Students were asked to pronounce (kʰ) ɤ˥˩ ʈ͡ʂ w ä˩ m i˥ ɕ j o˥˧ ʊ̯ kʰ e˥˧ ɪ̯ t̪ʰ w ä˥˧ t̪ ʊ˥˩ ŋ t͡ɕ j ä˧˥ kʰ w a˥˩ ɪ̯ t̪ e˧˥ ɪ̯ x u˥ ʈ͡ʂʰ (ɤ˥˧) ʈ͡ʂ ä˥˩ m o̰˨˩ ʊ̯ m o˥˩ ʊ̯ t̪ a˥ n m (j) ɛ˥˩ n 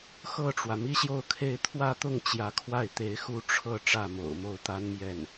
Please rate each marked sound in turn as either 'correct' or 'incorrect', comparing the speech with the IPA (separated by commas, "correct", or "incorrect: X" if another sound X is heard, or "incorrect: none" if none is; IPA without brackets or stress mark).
incorrect: x, correct, correct